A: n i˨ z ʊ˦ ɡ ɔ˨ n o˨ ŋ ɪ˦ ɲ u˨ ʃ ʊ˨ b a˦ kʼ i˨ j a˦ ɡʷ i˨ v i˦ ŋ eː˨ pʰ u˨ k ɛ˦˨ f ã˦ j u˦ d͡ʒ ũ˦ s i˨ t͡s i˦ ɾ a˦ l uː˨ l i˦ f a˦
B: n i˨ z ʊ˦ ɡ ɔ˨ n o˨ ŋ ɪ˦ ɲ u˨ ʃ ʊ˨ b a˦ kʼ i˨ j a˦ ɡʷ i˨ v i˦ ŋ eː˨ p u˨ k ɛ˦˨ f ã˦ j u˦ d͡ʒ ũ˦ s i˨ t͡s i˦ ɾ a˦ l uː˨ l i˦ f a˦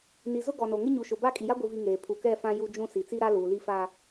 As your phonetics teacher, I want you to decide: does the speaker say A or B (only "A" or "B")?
A